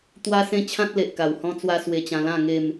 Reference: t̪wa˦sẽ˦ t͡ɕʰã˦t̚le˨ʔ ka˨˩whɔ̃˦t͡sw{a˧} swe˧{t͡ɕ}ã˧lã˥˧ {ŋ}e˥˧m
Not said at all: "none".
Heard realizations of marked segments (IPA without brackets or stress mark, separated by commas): a˦, t͡ɕ, ŋ